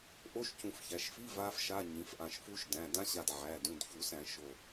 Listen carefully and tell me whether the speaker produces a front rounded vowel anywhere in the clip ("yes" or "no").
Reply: no